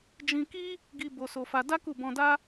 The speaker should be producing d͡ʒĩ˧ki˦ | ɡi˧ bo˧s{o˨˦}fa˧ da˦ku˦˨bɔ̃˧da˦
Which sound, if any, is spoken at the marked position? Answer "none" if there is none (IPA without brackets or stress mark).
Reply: o˧